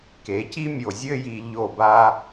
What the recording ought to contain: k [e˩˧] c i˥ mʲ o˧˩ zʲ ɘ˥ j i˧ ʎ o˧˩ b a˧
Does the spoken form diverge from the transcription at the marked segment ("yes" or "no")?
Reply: no